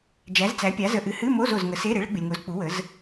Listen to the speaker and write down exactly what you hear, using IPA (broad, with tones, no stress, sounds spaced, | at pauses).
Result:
d͡ʒ æ˨˥ z t͡s æ˨˥ pʲ a˨˥ z ə˨ ʔ ɨ˨ h ɨ˧˥˧ m o˧˥˧ z o˨ z ŋ ə˨˥ s e˧˥˧ ɾ e˨˥ ɭ ə˨˥ ɡ͡b ɨ˨ lʲ ŋ o˨˥ z k͡p u˨˥ w ə˨˥ z